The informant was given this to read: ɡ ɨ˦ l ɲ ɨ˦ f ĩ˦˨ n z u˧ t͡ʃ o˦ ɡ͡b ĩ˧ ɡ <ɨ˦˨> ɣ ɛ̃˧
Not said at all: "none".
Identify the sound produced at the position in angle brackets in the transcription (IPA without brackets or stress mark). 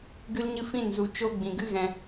ɨ˦